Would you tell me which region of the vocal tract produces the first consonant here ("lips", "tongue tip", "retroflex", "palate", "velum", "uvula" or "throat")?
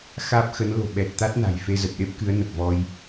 velum